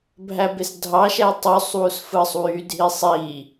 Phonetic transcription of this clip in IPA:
bʱ æ b e s dʱ ɑ ʃ æ tˤ ø sˤ w u s f ɯ sˤ w y dʱ i sˤ i

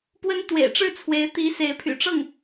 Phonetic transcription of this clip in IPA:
p w ə˥ n t̪ w ḛ˨˩ ɪ̯ ʈ͡ʂ ɻ̩˥˩ t͡sʰ w e˧˥ ɪ̯ t̪ i˧˥ s e˧˥ ɪ̯ pʰ y̰˨˩ ʈ͡ʂ ɤ˥˩ ŋ

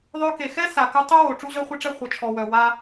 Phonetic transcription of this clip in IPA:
ðˤ ø˧ k e˩ x ɛ˥ s a˩ k u˧ tˤ ø˥ w o˩ ʈ͡ʂ u˧ ʑ œ˧ χʷ ɛ˧ ʈ͡ʂ ɛ˧ χʷ ə˩ t͡ʃʰ ɔ˩ w œ˩ w a˧

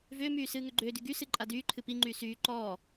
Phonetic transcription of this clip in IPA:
v ʏː m yː s ɨː ŋ ʏ ɡ͡ǃ ʏː d y ɡ y s ɨ ǃʼ a d yː ǃʰ ɨ p i ŋ͡ǃ yː s yː ǃ ɔː

